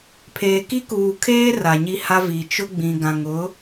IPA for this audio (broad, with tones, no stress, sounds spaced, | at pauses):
pʰ eː˨ k i˦ k uː˨ kʰ eː˦ r a˨ ɲ i˦ h a˦ v iː˨ t͡ʃ ʊ˦ ɡ͡b ĩ˨ ɡ ã˨ ŋ ʊ˨˦